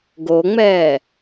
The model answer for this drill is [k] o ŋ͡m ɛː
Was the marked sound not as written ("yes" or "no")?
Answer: yes